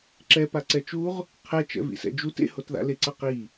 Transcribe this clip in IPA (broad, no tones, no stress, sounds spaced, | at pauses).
ǁ ɛ p a ǀ ɛ t͡ʃ u ʁ | qʰ ɛ t͡ʃ ɛ̰ v ḭ s ɛ̰ d͡ʒ u t ḛ h o t ð a̰ l e ǀ ʌ q i